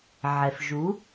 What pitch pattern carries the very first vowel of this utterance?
low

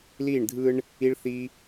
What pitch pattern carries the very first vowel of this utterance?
falling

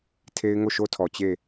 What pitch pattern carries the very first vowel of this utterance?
high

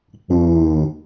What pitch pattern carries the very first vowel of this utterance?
low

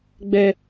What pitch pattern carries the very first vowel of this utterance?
high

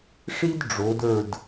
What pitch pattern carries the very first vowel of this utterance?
high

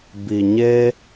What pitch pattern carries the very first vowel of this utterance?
low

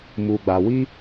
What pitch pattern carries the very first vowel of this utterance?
low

